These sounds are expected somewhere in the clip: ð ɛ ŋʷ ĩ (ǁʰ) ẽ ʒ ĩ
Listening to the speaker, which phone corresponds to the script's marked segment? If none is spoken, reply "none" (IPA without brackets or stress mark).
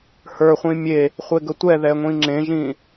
ŋ͡ǁ